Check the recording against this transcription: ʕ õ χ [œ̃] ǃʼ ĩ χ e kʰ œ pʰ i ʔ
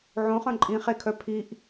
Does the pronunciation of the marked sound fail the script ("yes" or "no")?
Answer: no